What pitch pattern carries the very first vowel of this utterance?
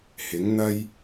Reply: rising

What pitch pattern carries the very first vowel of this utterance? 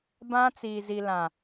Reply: high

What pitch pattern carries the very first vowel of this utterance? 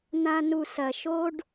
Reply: high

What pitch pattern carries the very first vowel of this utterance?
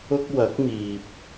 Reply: high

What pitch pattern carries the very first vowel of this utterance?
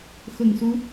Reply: low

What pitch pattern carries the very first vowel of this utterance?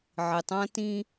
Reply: low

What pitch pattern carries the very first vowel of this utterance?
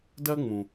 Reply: high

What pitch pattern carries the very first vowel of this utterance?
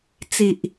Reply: low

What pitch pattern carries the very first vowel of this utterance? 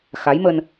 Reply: rising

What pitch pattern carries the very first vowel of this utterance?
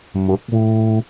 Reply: rising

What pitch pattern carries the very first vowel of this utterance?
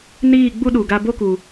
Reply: falling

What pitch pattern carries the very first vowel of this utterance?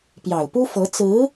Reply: low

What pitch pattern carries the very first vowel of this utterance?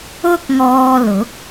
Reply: high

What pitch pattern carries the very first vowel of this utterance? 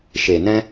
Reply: low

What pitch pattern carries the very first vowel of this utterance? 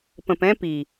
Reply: low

